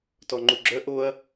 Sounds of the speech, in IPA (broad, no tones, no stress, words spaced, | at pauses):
tɔŋ͡ǃuɡ͡ǁœ ʔoɐ̯